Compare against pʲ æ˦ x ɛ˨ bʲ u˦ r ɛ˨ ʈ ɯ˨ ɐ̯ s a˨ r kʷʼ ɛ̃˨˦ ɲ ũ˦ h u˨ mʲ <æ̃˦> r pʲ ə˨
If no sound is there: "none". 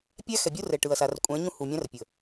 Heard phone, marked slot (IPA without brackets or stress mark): æ̃˦